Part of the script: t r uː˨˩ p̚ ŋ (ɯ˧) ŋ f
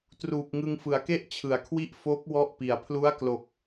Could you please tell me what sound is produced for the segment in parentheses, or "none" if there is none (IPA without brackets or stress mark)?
ɯ˧